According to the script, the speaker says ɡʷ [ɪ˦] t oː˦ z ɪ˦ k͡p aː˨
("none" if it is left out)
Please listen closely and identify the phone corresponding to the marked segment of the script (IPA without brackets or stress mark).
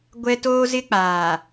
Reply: ɛ˦